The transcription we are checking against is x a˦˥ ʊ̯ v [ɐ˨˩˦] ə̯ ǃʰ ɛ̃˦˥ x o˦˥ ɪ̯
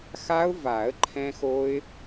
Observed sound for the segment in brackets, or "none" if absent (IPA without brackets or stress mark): a˨˩˦